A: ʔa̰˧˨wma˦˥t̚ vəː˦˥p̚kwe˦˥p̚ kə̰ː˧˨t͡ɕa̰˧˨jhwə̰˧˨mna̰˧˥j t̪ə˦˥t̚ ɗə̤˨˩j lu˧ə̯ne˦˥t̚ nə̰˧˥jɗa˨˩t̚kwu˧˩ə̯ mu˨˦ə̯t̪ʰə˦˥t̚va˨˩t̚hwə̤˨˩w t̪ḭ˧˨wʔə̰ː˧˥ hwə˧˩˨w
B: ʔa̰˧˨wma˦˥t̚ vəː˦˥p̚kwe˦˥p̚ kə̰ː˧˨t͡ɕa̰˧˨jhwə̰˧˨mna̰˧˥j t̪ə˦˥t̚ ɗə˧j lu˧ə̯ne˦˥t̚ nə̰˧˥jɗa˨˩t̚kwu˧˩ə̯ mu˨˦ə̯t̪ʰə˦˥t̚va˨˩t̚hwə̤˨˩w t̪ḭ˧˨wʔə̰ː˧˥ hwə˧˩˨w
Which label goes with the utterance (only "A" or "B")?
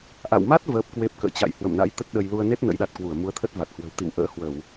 B